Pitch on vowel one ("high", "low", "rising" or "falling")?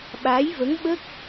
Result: rising